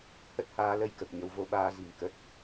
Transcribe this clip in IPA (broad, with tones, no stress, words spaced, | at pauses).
hə˦˥t̚haː˧lə˧j kə˨˩p̚ɲə˨˦wvo˧ ɓaː˧zi̤˨˩ŋ kə˦˥t̚